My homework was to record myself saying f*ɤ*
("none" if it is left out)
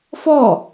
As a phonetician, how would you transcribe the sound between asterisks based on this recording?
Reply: ɔ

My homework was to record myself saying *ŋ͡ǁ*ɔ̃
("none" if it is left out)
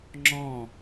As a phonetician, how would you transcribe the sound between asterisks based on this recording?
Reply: ŋ͡ǁ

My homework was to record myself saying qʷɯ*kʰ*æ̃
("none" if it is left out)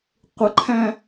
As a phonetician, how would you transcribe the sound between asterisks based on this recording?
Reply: ǃʰ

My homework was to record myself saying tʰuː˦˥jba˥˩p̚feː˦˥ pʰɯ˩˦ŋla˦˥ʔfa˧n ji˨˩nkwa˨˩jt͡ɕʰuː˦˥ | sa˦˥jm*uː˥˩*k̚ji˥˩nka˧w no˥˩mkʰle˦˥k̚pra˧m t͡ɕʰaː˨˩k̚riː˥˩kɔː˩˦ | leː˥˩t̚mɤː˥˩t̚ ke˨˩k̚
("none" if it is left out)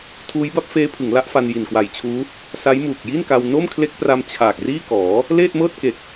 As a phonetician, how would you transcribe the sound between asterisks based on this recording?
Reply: uː˨˩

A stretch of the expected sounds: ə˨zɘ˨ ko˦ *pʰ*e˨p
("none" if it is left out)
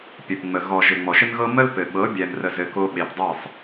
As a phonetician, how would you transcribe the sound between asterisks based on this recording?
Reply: ɓ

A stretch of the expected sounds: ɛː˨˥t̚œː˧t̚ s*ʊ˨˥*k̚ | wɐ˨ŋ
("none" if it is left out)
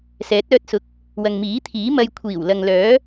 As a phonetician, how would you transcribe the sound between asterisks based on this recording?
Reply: ʊ˨˥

